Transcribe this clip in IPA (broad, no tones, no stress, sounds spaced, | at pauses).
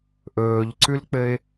ʔ ɵː ʎ ǀ ʉ l k͡p ɘ ɪ̯